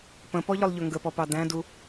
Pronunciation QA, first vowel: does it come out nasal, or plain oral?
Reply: nasal